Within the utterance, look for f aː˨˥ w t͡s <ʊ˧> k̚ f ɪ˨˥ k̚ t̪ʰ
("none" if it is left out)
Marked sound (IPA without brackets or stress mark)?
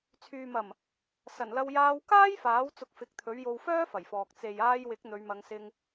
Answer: ʊ˧